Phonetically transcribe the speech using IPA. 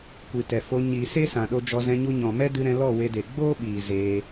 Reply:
kʷi˨tɛ˨ fo˧ ɲi˨ se˦sã˨ɗo˧d͡ʒɔ˧ zɛ̃˧ɲu˧ɲɔ̃˨mɛ˦ dɨ˧ɾɛ̃˧ lɔ˦˨we˧de˨ ɡ͡boː˦ ɓiː˨ zeː˧

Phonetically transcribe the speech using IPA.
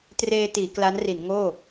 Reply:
treː˧tiː˩˦ kla˦˥nri˩˦nŋoː˥˩

